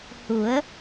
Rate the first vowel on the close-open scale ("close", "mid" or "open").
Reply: close